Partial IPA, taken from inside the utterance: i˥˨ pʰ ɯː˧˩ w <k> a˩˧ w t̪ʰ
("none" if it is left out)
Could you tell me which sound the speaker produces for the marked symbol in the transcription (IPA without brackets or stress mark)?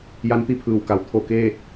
k